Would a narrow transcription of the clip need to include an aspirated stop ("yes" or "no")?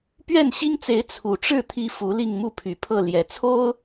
yes